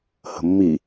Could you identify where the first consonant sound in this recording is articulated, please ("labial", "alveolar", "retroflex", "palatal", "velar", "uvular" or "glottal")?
glottal